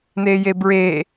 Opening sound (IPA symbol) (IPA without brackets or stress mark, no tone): n